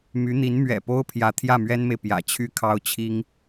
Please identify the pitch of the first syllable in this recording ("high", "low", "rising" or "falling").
rising